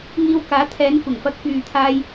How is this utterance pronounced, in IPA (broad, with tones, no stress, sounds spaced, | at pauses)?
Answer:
ŋ iː˧ w k aː˨˥ t̪ʰ ɛː˨˧ n kʷ ɪ˨˩ ŋ f ɐ˧ k̚ f yː˨ t̪ʰ aː˧ j